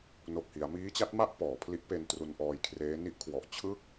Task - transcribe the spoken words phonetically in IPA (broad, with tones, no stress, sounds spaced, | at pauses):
n o˨˩ k̚ h i˩˦ a̯ m iː˦˥ t͡ɕ a˦˥ t̚ m a˥˩ ʔ p ɔː˩˦ pʰ l i˦˥ ʔ p e˧ n t r u˧ n ʔ ɔː˧ j kʰ r eː˦˥ n i˦˥ ʔ kʰ w ɔ˨˩ ʔ t͡ɕʰ ɯ˥˩ k̚